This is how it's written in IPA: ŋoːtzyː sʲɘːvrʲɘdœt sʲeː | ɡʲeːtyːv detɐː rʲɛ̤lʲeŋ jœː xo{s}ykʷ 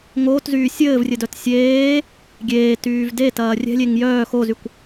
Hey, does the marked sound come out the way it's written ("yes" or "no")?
no